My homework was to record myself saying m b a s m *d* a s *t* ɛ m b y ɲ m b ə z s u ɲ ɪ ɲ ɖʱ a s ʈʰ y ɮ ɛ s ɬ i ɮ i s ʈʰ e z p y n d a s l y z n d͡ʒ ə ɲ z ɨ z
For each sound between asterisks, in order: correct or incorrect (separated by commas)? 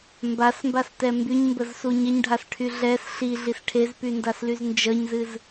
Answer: incorrect, correct